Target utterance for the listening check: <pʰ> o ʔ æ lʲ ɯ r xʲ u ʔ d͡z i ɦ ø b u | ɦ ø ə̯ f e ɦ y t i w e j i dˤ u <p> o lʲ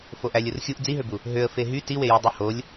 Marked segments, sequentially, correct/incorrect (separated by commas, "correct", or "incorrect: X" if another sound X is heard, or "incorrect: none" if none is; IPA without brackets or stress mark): incorrect: f, incorrect: h